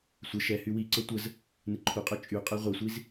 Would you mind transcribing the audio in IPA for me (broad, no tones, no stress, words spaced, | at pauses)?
sʷə ʃɛhy wiǀɤ tʷəz | nɪǃʰuqʼɤ t͡ʃʼyqʼɛ ʁʷɪsʷiz